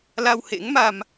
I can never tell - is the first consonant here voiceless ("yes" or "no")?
no